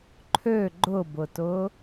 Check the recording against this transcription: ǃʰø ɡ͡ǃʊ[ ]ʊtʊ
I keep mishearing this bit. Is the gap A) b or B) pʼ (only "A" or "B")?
A